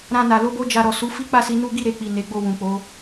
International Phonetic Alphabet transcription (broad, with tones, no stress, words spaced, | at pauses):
ɾã˧na˨ lo˧bo˧ d͡ʒa˨ɾɔ˨su˨˦ fi˦k͡pa˦˨si˧ nu˦ ɡi˦˨ɾe˨k͡pi˨ ne˨˦ɡ͡bo˦˨ wũ˨k͡po˨˦